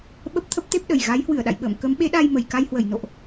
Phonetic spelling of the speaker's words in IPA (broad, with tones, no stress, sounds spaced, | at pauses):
ɓ ə˦˥ p̚ t̪ʰ ə˦˥ p̚ t̪ e˦˥ p̚ ɗ ə˨˩ j ɣ a˨˦ j h w ɨ˧˩ ə̯ ɗ a̰˧˨ j ɓ ə̰ː˧˨ m k ə˨˦ m ɓ e˨˦ ɗ a˧ j m ə˨˩ j k a˧ j h w ə˧˩ j n o̰˧˨ ʔ